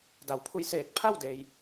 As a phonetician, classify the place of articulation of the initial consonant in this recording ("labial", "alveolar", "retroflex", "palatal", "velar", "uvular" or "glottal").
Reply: alveolar